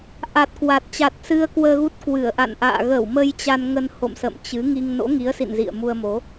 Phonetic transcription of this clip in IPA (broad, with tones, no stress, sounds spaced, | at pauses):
ʔ a˨˩ t̚ k w a˨˩ t̚ t͡ɕ a˨˩ t̚ s ɨ˧ ə̯ k w əː˧ ɣ u˦˥ t̚ k w ɨ˧˩ ə̯ ʔ a̰˧˨ n ʔ a̰ː˧˨ ɣ ə˧˩ w m ə˧ j t͡ɕ a˧ n ŋ ə˧ n h o̰˧˨ m s ə̰˧˨ m t͡ɕ ɨ˨˦ ŋ i˧ ŋ n o̰˧˥ ŋ i˨˦ ə̯ s ḭ˧˨ n z ḭ˧˨ ə̯ m u˧ ə̯ m o˨˦